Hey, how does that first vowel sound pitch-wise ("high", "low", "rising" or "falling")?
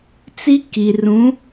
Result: high